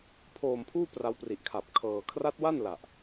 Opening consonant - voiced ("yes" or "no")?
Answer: no